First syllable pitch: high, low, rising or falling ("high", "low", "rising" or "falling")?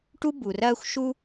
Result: high